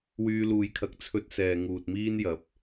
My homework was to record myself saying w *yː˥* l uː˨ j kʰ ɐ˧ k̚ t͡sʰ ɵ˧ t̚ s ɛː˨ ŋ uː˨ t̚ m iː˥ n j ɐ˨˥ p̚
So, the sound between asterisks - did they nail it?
no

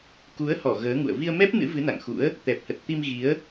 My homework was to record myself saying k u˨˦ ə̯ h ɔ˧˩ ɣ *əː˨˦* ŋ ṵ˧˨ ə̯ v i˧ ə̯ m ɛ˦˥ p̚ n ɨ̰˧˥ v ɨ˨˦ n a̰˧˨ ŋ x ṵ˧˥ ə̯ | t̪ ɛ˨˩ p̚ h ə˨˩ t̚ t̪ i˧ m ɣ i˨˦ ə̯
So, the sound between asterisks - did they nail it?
yes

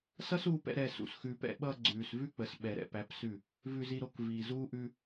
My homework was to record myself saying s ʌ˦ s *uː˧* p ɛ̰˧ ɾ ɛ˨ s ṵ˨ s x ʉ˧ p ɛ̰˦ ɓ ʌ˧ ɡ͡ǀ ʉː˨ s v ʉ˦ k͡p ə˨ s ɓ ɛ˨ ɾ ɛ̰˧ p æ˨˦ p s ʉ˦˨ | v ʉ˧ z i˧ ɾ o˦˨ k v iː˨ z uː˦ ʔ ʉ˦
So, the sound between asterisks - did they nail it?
yes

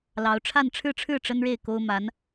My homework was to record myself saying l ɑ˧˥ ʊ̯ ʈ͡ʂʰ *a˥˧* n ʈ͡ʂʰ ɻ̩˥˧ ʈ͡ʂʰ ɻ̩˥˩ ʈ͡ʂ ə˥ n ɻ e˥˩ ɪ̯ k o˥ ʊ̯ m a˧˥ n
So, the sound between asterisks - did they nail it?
yes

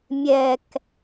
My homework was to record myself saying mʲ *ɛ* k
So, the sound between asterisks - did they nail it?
yes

